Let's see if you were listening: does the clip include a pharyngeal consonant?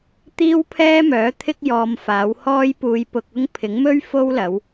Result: no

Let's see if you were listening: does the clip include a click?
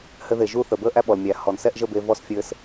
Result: no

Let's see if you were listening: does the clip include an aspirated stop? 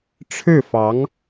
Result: yes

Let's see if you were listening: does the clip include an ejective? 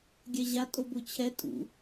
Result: yes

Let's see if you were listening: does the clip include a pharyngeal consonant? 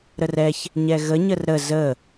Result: no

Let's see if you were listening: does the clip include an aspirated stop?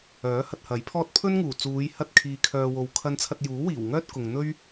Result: yes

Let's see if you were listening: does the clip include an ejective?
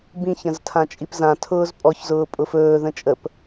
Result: yes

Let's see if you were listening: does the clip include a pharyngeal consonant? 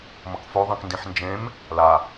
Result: yes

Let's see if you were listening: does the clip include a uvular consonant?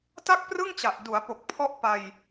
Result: no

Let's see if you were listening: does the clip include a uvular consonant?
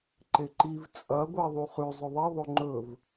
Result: yes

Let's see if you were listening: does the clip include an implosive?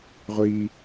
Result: no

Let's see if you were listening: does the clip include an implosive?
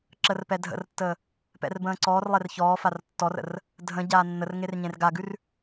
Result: no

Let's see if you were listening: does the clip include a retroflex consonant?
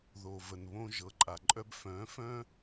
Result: no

